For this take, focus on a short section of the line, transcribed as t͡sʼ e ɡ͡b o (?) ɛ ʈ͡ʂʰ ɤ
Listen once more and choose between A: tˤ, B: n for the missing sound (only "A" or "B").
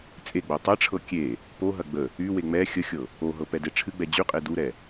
A